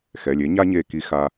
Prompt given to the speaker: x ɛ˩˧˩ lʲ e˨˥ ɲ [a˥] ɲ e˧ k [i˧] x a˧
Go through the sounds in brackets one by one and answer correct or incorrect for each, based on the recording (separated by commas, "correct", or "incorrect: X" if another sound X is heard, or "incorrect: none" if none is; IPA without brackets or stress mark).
correct, correct